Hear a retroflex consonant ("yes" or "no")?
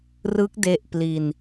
no